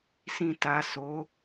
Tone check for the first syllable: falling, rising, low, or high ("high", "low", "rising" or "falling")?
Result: low